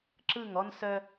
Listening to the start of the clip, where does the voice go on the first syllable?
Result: falling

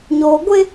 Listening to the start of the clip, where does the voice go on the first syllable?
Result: low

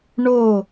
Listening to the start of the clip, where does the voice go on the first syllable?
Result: falling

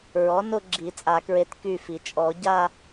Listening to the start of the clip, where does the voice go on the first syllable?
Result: rising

